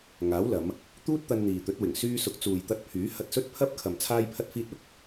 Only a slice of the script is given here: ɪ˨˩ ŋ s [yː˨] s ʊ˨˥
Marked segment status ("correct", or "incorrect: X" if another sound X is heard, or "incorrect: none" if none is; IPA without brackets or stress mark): incorrect: yː˧